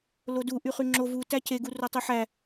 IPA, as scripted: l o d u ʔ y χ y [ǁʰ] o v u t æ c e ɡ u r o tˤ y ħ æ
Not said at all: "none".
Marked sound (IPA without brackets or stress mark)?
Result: ŋ͡ǁ